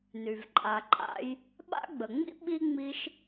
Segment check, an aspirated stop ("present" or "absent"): absent